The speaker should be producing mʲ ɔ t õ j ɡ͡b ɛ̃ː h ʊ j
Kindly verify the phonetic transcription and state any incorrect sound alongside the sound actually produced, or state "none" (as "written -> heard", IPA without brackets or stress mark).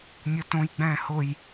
none